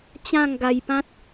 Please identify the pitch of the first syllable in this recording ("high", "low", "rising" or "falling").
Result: falling